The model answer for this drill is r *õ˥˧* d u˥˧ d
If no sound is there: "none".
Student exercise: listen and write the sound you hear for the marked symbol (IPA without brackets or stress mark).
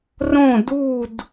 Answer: õ˥˧